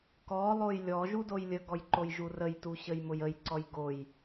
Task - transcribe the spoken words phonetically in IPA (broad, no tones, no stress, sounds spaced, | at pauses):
k ɔ lˠ o j lʲ ɔ ʒ u d o j lʲ ə ɡ ɔ j ǃ o j ʒ u r ə j t u ɕ ə j m ʊ j ə j ǀ ɔ j ɡ o j